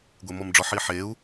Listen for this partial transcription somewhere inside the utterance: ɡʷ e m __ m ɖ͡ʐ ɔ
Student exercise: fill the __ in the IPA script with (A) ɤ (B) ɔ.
B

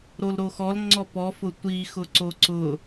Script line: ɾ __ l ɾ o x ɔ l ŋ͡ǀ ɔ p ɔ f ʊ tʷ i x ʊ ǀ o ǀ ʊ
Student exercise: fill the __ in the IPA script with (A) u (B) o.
B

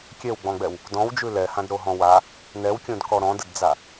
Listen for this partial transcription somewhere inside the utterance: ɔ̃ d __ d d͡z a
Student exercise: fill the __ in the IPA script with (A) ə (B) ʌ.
A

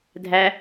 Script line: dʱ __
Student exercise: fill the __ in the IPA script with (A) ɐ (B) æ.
B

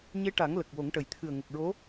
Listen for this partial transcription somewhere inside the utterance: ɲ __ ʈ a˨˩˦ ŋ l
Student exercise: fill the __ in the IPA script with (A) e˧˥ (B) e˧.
A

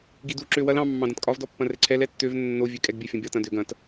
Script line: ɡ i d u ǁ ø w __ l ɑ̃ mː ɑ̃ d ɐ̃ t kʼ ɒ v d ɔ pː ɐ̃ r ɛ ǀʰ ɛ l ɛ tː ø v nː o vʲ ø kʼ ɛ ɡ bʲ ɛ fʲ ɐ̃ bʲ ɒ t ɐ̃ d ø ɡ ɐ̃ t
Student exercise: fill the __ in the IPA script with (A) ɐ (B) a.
A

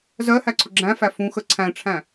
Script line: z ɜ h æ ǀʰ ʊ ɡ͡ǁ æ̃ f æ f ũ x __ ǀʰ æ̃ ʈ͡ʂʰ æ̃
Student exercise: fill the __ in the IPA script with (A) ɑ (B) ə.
B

